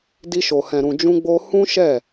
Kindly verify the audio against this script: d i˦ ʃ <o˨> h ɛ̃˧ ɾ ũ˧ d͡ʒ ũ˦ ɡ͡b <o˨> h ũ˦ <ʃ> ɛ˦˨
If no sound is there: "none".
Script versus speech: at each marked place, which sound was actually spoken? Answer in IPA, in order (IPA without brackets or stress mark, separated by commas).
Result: o˧, o˦, ʃ